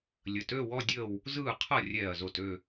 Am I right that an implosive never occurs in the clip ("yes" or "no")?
yes